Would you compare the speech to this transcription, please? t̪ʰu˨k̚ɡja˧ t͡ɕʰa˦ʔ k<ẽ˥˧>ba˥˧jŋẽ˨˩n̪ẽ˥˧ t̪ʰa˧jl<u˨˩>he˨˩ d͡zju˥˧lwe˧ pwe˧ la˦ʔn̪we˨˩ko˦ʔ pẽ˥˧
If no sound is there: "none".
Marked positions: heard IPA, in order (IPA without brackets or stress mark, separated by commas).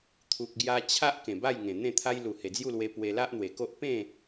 ẽ˨˩, u˨˩